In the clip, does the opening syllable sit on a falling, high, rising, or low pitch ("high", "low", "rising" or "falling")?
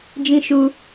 high